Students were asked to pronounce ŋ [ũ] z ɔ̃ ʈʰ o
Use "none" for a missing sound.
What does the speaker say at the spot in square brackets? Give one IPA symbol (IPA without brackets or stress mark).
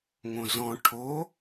õ